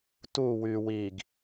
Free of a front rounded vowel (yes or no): no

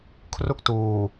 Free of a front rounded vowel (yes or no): yes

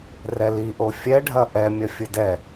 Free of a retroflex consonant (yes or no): no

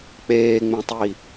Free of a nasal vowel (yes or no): no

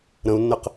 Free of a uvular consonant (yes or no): no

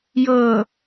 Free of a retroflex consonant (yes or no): yes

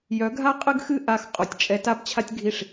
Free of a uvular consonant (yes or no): no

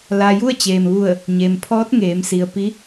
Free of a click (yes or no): yes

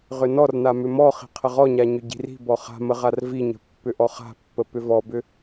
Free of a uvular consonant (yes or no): no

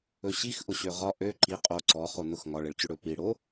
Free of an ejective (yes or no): no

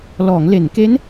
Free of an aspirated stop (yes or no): yes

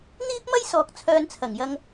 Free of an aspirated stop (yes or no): no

